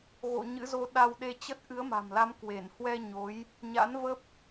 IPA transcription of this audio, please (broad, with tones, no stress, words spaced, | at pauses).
ɣo̰˧˨ ɲɨ̰˧˥zo˧ ɗa˧wɗe˧t͡ɕə˦˥t̚ ʔɨ˨˦ə̯ma̤˨˩mla˨˦m kwe˧˩nhwɛ˧ ɲo˨˦j | ɲa̰˧˥nvə˦˥p̚